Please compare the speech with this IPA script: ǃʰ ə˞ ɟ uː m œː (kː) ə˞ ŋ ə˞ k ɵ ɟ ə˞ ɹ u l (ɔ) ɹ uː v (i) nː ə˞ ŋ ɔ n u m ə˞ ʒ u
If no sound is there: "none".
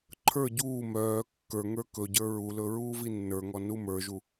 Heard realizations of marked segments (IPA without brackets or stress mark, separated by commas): kː, ɵ, i